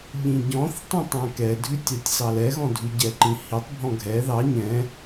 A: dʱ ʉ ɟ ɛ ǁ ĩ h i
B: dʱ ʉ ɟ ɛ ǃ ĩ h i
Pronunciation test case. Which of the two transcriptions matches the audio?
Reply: B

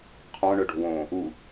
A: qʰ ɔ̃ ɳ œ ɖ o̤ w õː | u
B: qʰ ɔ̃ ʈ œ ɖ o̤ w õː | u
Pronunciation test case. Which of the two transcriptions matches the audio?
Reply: A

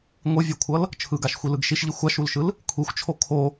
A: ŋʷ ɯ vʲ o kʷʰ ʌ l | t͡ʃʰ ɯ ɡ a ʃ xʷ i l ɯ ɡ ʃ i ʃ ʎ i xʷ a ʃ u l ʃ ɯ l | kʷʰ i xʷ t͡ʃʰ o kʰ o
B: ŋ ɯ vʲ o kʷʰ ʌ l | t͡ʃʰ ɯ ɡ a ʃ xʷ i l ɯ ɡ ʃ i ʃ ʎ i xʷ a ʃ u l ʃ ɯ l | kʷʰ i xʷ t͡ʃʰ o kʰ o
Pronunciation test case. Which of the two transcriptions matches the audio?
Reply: A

